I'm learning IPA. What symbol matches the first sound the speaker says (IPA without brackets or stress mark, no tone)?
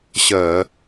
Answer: ɕ